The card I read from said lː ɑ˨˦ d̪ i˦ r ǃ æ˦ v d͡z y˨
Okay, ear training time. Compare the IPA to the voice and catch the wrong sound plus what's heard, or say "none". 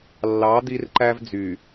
none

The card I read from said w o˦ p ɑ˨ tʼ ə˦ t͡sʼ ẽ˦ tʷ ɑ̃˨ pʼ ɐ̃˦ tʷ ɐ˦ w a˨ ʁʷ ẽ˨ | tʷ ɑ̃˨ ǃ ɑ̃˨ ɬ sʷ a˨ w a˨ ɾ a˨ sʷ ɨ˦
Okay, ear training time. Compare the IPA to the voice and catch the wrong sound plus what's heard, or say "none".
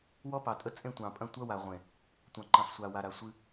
o˦ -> ɔ˦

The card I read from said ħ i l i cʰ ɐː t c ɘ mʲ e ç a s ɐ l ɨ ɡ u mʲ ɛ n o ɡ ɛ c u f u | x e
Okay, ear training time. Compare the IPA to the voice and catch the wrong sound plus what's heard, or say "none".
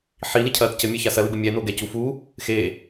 none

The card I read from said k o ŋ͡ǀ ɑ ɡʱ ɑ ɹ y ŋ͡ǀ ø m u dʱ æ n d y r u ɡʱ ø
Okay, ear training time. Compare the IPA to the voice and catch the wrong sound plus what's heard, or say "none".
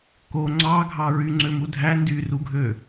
none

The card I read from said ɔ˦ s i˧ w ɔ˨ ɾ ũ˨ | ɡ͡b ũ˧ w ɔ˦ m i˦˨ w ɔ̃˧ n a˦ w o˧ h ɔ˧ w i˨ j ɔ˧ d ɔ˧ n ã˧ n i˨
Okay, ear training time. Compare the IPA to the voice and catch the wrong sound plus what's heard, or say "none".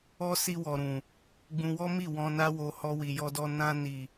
none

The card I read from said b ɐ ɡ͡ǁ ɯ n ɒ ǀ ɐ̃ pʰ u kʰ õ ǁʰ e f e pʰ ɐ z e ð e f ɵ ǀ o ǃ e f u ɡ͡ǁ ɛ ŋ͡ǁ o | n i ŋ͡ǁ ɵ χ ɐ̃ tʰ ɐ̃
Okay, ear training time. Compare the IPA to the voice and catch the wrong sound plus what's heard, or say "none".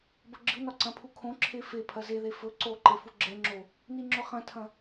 none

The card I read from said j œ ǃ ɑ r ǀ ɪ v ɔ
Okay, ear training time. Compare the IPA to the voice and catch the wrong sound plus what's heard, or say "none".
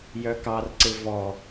ǃ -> k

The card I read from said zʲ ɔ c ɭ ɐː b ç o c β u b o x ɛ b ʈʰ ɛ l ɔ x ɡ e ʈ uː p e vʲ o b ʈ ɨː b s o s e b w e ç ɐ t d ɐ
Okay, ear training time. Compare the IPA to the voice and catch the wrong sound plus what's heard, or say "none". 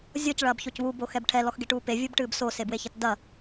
none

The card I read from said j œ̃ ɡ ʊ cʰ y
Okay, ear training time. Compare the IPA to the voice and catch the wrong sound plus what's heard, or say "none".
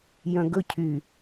ʊ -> ɵ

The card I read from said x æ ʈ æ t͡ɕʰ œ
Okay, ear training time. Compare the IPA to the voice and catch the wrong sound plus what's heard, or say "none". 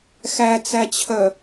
ʈ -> t͡s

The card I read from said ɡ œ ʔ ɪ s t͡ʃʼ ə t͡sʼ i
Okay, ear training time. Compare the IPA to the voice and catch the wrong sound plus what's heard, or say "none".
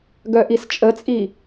ɪ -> i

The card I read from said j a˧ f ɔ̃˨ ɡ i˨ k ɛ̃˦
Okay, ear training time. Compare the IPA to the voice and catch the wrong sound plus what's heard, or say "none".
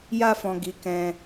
i˨ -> i˨˦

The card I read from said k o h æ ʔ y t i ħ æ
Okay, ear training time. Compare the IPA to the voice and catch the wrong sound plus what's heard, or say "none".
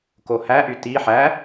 none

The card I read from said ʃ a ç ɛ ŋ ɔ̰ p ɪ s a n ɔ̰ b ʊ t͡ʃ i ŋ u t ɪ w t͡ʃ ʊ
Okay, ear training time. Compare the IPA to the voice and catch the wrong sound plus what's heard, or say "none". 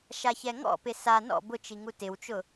none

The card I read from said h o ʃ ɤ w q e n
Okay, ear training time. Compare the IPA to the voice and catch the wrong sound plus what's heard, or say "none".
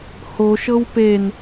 q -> p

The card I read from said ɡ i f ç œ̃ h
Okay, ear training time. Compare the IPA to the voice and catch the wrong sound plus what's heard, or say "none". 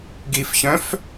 h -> f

